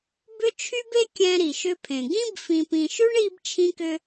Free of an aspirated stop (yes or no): no